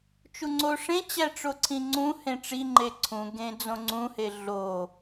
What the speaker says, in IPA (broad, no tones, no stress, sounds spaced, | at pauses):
t͡ʃ u ŋ͡ǀ o ʂ ẽ t͡ɕ æ ʈ͡ʂ o ǀʰ ĩ ŋ͡ǀ ũ h ẽ ʈ͡ʂ i ŋ͡ǃ e ǀʰ ũ ɡ ẽ d͡z õ ŋ͡ǀ ũ h e ɮ o